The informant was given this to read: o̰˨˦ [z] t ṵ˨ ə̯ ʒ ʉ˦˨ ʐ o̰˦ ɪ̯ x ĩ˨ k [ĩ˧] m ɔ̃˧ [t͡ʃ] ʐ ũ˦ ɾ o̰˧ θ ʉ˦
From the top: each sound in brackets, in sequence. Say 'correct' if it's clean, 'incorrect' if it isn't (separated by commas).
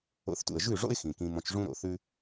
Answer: incorrect, correct, correct